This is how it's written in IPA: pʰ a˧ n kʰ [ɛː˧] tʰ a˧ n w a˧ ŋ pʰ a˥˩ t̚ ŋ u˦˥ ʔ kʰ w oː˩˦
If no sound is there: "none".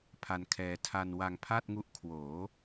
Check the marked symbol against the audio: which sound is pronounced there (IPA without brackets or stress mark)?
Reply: ɛː˧